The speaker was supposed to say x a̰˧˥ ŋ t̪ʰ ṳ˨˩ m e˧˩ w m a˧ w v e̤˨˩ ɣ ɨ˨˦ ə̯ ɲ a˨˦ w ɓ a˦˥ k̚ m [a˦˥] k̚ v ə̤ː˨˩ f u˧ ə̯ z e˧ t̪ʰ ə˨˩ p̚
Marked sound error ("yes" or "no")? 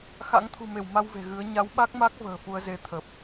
no